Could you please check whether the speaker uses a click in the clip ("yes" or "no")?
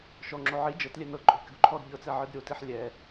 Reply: yes